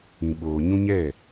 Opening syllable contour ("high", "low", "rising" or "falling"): low